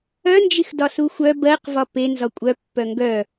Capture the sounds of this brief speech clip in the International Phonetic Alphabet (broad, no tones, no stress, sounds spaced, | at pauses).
œ n d͡ʒ i x d ɒ s u xʷ œ b ɜ q v ɒ p e n z ɒ kʷʼ œ pː œ ŋ ɡ œ